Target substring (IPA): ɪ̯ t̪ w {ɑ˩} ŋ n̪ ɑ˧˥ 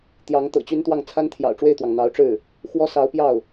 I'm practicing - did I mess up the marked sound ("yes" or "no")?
no